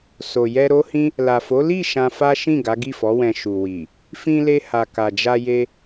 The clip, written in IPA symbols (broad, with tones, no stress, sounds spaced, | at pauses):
s o˨ j ɛ˧ ɾ o˦ h ĩ˦ | l a˨ f o˨˦ l i˦˨ ʃ ã˧ f a˦ ʃ ĩ˦˨ ɡ a˨˦ ɡ i˦˨ f ɔ˨˦ w ɛ̃˧ ʃ u˨ w i˨ | f ĩ˧ l e˧ h a˨ k a˨ d͡ʒ a˧ j e˧